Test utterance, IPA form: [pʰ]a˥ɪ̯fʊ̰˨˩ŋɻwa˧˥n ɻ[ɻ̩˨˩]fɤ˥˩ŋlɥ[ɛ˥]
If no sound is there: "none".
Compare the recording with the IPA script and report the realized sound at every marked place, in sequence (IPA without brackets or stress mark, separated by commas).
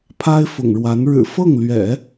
pʰ, ɻ̩˨˩, ɛ̰˨˩˦